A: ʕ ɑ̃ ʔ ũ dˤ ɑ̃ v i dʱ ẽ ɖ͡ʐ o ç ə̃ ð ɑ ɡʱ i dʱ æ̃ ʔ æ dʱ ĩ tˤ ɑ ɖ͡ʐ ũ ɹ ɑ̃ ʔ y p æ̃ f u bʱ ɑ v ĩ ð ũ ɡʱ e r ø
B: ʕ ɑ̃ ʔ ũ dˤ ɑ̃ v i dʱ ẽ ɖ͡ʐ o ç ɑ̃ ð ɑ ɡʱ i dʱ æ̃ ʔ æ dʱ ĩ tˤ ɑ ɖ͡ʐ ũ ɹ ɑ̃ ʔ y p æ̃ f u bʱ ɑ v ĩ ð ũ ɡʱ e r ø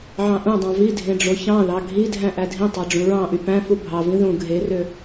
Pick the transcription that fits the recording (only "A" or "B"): B